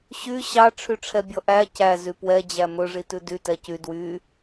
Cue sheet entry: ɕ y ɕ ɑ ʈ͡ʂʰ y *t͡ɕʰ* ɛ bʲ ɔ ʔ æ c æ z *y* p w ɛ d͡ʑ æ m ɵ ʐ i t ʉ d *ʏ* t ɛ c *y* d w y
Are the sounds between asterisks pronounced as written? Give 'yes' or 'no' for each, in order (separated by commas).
no, yes, no, yes